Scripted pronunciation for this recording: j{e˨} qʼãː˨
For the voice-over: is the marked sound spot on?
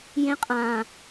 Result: no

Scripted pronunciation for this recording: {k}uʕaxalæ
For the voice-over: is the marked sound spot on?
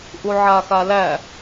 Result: no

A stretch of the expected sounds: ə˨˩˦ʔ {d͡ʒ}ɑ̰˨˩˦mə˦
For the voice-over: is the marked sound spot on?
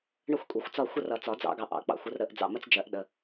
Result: no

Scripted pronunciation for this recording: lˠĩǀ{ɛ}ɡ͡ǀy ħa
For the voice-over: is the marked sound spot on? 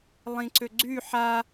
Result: no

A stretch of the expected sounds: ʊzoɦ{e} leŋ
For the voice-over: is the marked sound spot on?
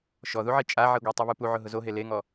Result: yes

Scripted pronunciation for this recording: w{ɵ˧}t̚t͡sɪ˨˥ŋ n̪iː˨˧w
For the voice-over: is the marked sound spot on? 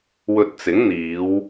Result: yes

